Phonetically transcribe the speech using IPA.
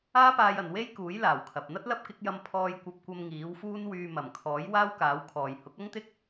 aː˥ p aː˧ j ɐ˨ n w e˥ j k uː˨˥ j l aː˨˩ w kʰ ɐ˨ p̚ n̪ ɐ˥ t̚ l ɐ˥ p̚ k ɪ˨˥ k̚ j ɐ˧ m pʰ ɔː˧ j kʷ ɐ˧ p̚ kʷ ɐ˧ m ŋ iː˨˥ w f uː˥ n w yː˧ m ɐ˨˩ m kʰ ɔː˨˥ j w aː˥ w k aː˨˥ w kʰ ɔː˨ j h ʊ˨˥ k̚ ɐ˥ ŋ t̪ ɪ˥ k̚

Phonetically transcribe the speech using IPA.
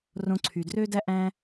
r õ˧ ǀʰ y˩ d r ø˥ d æ˥ ʔ æ̃˥

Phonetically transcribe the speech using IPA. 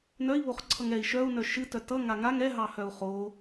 n œ i̯ β o χ ǀʰ ʌ ŋ ɛ i̯ ʃ œ u̯ n œ ʃ ɨ t œ t ʌ ŋ a ŋ a ŋ ɛ ɦ ɑ h œ u̯ χ o

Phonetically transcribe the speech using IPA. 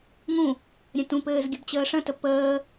ŋ ũ | ɾʲ ə̃ t ũ p ɘː z ɡʲ ə b t͡ɕ əː ʂ ə̃ t ə p əː

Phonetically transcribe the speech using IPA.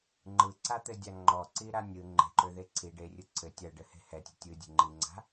ŋ͡ǃ ɯ ǀ a t̪ ɘ dʲ a ŋ͡ǃ ɔ ǀ i ɾ a nʲ ɯ ŋ͡ǃ e̤ ǃ ø ð e ǀʰ i ɖ e rʲ ɯ ǀʰ ɘ tʲ ɐ ɖ ɘ h e̤ h ɛ tʲ e̤ tʲ ɯ dʲ e̤ ŋ͡ǃ i ŋ͡ǀ a̤

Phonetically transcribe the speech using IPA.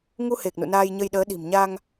ŋ u˧ h e˨˩ k̚ n ṵ˧˨ n aː˧ j ɲ ə˧ j ɗ əː˨˦ ɗ i̤˨˩ m ɲ a˧ ŋ

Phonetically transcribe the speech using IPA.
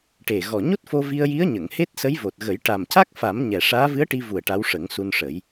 ʈ e˨˩ ɣ ɔ˨˩ ɲ o˦˥ t̚ f o˧ v i˧ ə̯ j i˧˥ ə̯ ɲ ə˨˩˨ ŋ h e˦˥ t̚ s ə˧˥ j v o˨˩ t̚ ɣ ə˨˩˦ j ʈ a˨˩ m c a˦˥ k̚ f a˨˩˦ m ɲ ɛ˨˩ ʂ aː˧˥ v ɨ˧˥ ə̯ ʈ i˧ v u˨˩ ə̯ ʈ a˧˥ w ʂ ə˨˩˦ ŋ s u˧ n ʂ ə˨˩˦ j

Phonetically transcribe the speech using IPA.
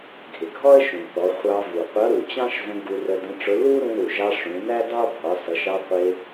ɡʱ ɪ˩ ɡʱ ɔ˥ ə̯ ʃ ũ˩ θ ɔ˩˧ χʷ ɑ˧ v u˩ qʷ ʌ˧˥ ɾ u˩ t͡ɕ ɑ̃˥ ʃ z ə̃˧ ɡ u˧ r ə˧ d ə̃˧˥ ʈ͡ʂ ʊ˧˥ l u˥ ɾ ũ˧ ɾ u˩ ʒ ɑ˧ ʂ ũ˩˧ n æ˥ d ɑ˥ bʱ ɒ˩˧ s ʌ˩˧ ʃ ɑ˧ qʷ ɪ˧

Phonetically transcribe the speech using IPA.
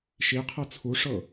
ʃ i qʰ ɤ t͡sʰ u ʂ ɤ

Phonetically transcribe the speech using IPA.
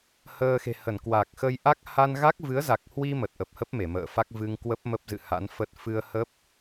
h əː˧ x e̤˨˩ h ə˧˩ n k w a˨˩ k̚ x ə˧ j ʔ a˦˥ k̚ h a˧ n ɣ a˦˥ k̚ v ɨ˨˦ ə̯ z a˨˩ k̚ h w i˧ m ə˨˩ t̚ ʔ ə˨˩ p̚ h ə˦˥ p̚ m e˧˩ m ə̰ː˧˨ f a˦˥ k̚ v ɨ˧ ŋ k w ə˦˥ p̚ m ə˦˥ p̚ z ɨ̰˧˨ h a̰˧˥ n f ə˦˥ t̚ f ɨ˧ ə̯ h ə˦˥ p̚

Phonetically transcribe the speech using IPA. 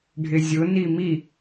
ɖʱ ɪ zʲ ʊ n i m i

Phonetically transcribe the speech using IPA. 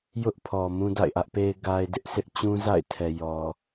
j ʊ˦ ʔ pʰ ɔ˨ m ũ˦ d a̰˦˨ ɪ̯ ʔ ä˦ ʔ p e˦ ɪ̯ ɡ a˦ ɪ̯ d ɪ˦ ʔ sʰ ɪ˦ ʔ t͡ɕ ũ˦ z a̰˦˨ ɪ̯ tʰ ɛ˨ j ɔ˨

